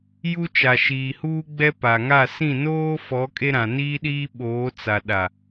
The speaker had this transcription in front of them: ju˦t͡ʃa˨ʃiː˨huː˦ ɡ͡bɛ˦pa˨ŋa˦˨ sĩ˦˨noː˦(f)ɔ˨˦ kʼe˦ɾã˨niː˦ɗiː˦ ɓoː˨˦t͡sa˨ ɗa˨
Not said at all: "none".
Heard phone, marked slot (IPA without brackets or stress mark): f